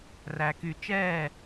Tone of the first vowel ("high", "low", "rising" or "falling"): low